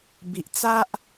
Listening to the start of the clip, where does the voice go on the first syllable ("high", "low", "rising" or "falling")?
low